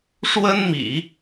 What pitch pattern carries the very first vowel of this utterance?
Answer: high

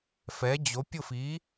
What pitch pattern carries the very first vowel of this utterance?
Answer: rising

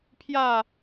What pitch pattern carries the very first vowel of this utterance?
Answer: falling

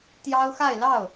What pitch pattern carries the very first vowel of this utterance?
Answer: high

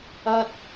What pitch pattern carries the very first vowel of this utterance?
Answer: high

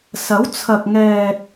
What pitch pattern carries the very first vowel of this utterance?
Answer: rising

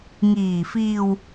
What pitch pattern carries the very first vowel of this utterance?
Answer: low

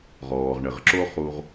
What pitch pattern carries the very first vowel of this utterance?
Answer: low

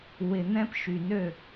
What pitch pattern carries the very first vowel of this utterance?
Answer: low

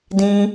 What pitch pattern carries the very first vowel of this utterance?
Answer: high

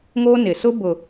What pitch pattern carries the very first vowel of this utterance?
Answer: high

